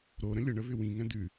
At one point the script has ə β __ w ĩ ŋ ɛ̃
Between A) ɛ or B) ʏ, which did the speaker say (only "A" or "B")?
B